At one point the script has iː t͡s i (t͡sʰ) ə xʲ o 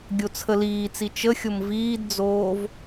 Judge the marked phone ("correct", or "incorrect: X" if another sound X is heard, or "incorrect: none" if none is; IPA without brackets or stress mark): incorrect: t͡ʃ